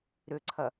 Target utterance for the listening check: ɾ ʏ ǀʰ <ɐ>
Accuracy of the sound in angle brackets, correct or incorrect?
correct